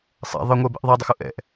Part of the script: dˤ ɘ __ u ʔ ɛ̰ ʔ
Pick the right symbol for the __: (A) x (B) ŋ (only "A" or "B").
A